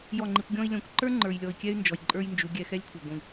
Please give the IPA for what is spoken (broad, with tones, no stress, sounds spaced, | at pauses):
j ɔ˦˨ ŋ͡ǃ i˧ kʷ ɡʲ ɔ̃˦ i̯ lʲ ɔ̃˧ kʷ ǃ ə˞˦ ŋ͡ǃ ə˞˨ j lʲ ɔ˨ i̯ kʲ ɛ˦ y̯ n d͡ʒ ɔ˨ j ǃʼ ə˞˦ j n d͡ʒ u˨˦ ɡʲ ɛ˧ x ɛ˦ lʲ kʷʰ ə˞˨ ɡʷ ĩ˨